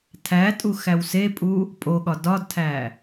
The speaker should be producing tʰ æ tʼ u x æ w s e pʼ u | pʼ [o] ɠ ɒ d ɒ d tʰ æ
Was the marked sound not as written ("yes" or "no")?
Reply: no